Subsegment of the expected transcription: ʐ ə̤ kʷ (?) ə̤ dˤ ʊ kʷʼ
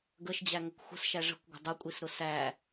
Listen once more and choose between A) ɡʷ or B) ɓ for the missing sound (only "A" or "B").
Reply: A